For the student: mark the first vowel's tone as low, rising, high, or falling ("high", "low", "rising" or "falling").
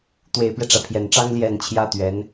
low